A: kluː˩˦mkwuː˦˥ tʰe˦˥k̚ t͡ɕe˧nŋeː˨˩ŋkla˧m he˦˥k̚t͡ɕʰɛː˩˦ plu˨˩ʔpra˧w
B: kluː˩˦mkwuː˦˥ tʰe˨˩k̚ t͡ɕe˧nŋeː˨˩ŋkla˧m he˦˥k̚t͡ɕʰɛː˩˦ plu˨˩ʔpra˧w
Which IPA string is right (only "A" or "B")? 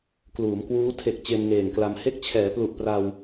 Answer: B